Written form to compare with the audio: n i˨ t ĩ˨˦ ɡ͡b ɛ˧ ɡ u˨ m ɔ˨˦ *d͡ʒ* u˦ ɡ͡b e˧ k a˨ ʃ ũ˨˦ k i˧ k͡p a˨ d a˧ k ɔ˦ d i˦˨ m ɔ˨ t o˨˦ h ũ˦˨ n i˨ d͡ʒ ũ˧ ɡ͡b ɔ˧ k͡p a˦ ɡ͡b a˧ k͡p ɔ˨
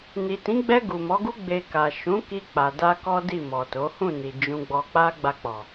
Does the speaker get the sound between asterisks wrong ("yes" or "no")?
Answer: yes